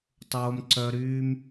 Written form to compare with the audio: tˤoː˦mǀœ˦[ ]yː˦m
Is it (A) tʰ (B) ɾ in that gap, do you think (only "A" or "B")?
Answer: B